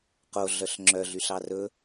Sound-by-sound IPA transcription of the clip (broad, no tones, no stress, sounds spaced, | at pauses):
q o ɮ œ ɬ ŋ͡ǁ œ ɮ y ɬ ɑ r ɵ